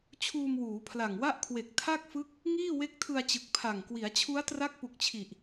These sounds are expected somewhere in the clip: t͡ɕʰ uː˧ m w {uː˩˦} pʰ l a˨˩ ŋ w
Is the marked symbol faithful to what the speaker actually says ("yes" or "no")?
yes